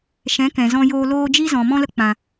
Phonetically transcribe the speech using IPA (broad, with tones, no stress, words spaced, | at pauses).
ʃɛ̃˨˦ kɛ̃˨zɔ̃˦joː˦ loː˦ d͡ʒi˦zɔ̃˨ mɔ̃˦lə˧ k͡pã˨